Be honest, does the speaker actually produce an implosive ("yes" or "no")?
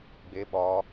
yes